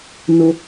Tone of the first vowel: high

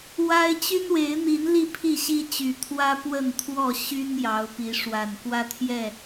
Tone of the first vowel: high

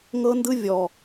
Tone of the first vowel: high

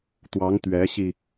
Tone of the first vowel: rising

